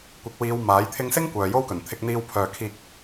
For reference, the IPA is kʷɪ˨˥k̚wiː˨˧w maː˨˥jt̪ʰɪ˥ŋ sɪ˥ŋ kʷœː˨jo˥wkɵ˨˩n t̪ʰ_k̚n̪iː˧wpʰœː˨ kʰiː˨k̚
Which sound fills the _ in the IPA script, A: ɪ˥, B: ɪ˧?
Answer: B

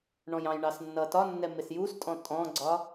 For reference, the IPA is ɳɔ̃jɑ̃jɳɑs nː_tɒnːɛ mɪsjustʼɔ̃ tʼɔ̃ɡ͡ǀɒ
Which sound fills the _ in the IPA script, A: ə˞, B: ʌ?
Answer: B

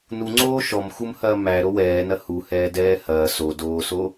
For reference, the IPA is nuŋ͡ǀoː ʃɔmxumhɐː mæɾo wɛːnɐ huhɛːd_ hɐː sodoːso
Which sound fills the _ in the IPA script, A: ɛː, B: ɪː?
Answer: A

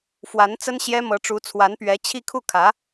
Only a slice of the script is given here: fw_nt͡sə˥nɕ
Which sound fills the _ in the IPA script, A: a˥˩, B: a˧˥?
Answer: B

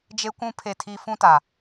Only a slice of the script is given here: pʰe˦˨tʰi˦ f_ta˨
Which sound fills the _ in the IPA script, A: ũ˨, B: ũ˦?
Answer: B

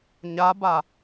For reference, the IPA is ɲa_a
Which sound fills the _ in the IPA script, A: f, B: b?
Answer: B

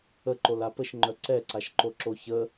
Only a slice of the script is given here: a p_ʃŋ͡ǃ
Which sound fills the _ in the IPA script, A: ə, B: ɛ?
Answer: A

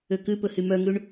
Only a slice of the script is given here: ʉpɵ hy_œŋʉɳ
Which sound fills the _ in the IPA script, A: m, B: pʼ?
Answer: A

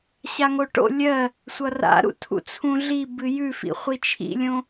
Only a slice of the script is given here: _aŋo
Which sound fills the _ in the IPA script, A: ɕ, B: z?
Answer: A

